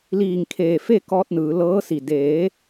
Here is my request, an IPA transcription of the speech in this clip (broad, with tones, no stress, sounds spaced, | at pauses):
l iː˧˩ ŋ kʰ eː˧˩ f e˥˨ k ɔː˧ t̚ n ɯː˩˧ l ɤː˧˥ s i˧˩ d eː˩˧